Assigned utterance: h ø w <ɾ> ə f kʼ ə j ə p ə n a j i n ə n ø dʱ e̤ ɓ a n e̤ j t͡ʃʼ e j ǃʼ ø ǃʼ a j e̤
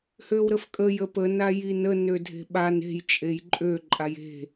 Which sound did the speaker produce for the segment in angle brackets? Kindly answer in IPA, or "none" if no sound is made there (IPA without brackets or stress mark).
ɾ